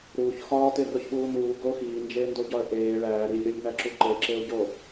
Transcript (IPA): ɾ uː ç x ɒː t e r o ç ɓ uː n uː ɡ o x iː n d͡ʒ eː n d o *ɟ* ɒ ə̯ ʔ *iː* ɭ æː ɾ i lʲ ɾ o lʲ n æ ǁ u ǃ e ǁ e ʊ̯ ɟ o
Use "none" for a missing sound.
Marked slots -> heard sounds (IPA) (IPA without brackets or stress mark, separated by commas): ɟ, eː